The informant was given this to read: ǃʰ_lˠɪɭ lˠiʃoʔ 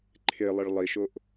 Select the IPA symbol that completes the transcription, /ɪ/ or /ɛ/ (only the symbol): ɪ